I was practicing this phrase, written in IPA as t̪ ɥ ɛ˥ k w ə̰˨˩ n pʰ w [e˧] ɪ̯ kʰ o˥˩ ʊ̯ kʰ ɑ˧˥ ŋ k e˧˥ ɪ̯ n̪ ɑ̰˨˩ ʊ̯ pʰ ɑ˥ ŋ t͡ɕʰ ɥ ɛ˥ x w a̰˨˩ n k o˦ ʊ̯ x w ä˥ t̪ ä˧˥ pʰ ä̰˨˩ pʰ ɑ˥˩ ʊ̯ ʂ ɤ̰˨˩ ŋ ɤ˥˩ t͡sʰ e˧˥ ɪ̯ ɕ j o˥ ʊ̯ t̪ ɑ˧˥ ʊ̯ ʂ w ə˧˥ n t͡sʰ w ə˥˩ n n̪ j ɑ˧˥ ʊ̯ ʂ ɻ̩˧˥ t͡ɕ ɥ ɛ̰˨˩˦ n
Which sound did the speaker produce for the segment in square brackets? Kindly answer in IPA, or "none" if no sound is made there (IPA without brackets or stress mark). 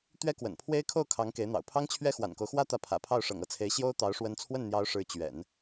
e˥